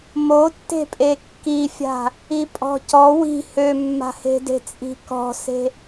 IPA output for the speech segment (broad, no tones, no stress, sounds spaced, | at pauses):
m o tː e̤ pʼ e kː i fʲ a̤ | i pʼ ɔ̤ c ɔ w i̤ h ø mː a̤ h e̤ d e̤ t͡sʼ i̤ k ɔ̤ s e̤